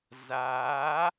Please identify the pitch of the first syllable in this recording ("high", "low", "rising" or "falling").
rising